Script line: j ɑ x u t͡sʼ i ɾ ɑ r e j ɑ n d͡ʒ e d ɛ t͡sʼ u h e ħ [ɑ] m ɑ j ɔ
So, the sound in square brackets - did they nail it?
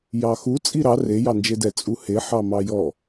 yes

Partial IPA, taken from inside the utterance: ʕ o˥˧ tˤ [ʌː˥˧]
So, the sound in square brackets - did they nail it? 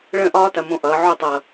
no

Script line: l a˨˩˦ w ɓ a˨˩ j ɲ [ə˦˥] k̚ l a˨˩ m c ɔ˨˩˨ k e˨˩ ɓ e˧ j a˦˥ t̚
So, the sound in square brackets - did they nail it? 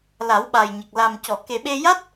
no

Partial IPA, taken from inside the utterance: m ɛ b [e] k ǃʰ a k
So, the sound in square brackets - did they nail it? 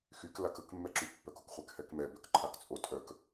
no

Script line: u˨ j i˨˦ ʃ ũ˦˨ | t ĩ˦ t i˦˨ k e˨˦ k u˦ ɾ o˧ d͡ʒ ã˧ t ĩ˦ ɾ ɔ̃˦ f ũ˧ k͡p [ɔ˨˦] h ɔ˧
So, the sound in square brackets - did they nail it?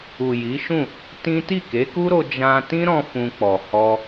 no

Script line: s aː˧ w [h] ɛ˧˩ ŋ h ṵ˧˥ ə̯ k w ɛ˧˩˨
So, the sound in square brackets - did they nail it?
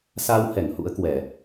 yes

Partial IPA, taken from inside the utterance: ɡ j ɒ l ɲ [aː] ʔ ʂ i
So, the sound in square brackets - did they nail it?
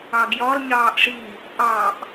no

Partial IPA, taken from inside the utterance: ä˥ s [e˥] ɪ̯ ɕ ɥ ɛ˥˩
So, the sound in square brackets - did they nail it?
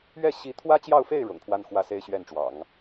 yes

